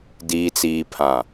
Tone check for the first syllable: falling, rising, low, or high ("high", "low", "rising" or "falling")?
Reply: low